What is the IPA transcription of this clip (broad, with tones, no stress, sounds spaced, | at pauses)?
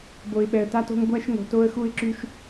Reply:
b o˧ ɪ̯ ɓ ɛ˧ ə̯ t a˦ t o̤˦ ŋ ɡʷ æ˦ ʃ ŋ o̤˨ t o˧ ə̯ x u˧ ɪ̯ ǁ y˧ ʃ